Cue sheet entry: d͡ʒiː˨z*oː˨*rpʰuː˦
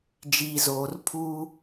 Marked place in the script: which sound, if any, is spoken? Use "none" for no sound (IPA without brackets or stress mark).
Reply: oː˨